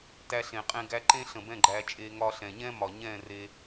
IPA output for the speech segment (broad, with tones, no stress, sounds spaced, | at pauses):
t æ˧ ɬ ẽ˨ qʼ ẽ˧ ɡ æ˧ ǃ ẽ˦ ɬ ə̃˨ b ɛ̃˦˨ ɡ͡ǃ æ˧ t͡ʃʼ e˧ ŋ ɒ˧ ɬ ɛ̃˨ ɲ ɛ̃˦ m ɒ˨ ɲ ɛ̃˦˨ r e˧